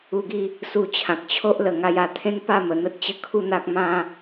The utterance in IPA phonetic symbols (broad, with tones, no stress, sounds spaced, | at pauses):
u˧ ɡ i˥˧ | s u˧ t͡ɕʰ ã˨ k̚ t͡ɕʰ o˦ ʔ l ə˨˩ ŋ a˧ j a˧ t̪ʰ ẽ˦ n p a˥˧ m ə˨˩ n̪ ə˦ t̚ t͡ɕ ə˥˧ kʰ u˥˧ n̪ a˦ k̚ m ã˦